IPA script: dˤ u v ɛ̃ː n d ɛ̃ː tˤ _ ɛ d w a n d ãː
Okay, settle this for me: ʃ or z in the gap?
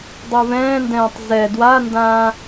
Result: z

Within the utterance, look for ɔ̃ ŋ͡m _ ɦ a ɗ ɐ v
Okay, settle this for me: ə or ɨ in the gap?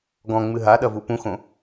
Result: ɨ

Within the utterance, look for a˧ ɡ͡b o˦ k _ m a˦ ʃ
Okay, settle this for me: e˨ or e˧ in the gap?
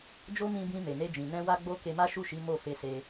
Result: e˧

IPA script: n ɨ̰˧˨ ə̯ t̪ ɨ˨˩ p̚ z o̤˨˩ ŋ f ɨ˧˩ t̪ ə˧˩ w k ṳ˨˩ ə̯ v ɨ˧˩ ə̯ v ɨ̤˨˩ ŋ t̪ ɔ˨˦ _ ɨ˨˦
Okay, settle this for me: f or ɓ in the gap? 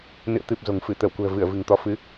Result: f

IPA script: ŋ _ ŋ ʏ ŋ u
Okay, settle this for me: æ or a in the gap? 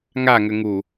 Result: a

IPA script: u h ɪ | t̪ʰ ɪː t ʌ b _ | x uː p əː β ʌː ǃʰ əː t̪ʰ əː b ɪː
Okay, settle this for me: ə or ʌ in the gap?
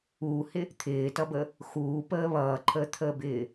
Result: ə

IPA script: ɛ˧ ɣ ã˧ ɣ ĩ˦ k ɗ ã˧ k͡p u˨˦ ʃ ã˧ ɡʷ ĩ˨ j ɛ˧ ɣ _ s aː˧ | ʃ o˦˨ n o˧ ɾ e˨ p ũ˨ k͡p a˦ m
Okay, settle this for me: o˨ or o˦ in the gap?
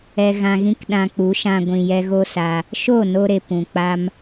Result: o˦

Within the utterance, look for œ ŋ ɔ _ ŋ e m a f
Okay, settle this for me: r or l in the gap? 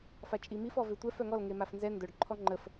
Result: l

